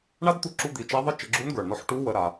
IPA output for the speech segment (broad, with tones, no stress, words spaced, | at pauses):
ɳa˥dt̪u˧ǁu˧ d̪i˩˧t͡ʃa˧˥ðˤə˥ t͡ʃə˩˧ɡ͡ǁu˧˥nɡə˞˩ɳnɔ˧˥ħ ʈu˧˥wə˩˧ ɾa˩